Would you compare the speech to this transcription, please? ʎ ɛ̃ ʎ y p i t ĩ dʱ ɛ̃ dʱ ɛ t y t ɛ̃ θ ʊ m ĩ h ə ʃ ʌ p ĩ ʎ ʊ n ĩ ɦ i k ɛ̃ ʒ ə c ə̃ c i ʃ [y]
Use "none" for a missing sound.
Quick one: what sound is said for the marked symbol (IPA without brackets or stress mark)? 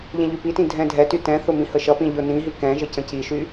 y